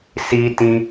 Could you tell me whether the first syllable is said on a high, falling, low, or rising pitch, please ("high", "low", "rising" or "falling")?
high